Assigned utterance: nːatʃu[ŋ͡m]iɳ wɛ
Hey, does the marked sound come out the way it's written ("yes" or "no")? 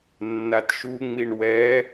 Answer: yes